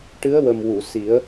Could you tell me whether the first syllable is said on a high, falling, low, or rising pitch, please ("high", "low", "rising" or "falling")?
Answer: rising